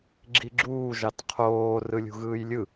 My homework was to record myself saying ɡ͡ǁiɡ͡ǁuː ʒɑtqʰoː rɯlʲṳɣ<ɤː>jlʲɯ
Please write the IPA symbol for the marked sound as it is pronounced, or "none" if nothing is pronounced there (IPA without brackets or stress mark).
ɯː